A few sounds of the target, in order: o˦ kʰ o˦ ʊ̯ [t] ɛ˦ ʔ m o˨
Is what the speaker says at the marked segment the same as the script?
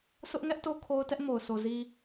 yes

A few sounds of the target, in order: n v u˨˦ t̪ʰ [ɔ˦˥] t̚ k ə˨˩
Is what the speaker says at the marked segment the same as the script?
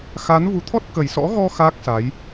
yes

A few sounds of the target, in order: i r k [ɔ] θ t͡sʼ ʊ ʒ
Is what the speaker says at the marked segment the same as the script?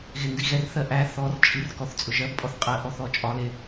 yes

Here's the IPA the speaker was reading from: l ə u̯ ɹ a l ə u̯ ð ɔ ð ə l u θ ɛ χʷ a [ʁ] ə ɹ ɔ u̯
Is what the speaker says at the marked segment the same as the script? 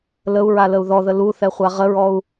yes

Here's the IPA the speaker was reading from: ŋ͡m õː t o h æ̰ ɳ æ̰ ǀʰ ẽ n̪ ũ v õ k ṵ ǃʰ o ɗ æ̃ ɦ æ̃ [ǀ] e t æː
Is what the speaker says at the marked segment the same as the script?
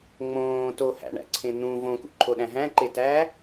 no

